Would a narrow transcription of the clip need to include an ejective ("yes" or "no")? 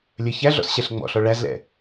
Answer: no